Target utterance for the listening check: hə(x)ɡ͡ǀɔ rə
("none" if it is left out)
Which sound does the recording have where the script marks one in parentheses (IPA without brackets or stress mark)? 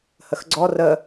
x